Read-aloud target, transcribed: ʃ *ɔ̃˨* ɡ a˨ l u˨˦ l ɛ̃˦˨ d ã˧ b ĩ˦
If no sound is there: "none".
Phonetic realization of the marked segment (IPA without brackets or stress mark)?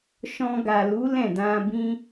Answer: ɔ̃˧